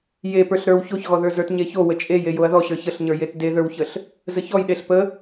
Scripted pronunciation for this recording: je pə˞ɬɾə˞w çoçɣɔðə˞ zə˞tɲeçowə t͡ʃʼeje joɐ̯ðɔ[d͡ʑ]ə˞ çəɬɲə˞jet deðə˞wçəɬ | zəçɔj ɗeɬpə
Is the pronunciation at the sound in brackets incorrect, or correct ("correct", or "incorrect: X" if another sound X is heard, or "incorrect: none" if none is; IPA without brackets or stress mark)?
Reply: incorrect: ɕ